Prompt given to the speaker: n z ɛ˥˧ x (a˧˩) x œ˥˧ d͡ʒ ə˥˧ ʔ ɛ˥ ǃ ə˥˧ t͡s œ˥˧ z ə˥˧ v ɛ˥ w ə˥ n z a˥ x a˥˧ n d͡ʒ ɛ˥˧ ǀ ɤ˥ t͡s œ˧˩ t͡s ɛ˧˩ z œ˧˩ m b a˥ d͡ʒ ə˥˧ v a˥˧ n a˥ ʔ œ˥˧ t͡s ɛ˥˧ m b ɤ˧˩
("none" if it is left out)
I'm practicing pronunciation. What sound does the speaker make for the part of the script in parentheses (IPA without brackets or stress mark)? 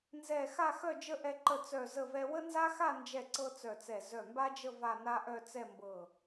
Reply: a˥˧